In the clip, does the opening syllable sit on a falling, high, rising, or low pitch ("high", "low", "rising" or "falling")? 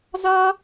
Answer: high